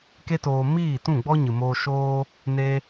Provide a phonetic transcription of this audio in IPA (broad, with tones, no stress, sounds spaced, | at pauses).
k e˦ t oː˧ m iː˦˨ t ũ˦˨ ɡ͡b ɔ˦ ɲ ɨ˨ m oː˧ ʃ oː˧ | n e˦